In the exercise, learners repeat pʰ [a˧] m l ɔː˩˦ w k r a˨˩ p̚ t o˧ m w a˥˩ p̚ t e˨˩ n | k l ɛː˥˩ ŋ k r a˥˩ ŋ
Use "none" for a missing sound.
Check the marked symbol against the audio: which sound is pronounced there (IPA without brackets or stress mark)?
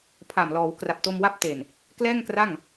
a˨˩